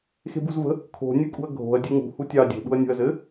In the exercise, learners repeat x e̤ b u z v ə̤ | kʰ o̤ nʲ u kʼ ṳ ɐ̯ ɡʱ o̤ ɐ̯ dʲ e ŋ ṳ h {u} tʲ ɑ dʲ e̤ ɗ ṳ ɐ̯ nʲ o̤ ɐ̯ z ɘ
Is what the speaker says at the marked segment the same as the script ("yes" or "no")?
yes